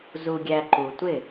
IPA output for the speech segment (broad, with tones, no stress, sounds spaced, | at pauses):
z u˧ ɡʲ æ˧ ǃ u˩ tʷ ɪ˥˩